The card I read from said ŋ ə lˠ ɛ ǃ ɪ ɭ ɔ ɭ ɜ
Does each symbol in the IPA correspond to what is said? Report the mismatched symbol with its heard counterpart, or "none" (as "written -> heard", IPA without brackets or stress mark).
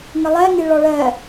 ǃ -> ŋ